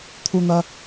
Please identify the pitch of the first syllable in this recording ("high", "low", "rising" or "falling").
high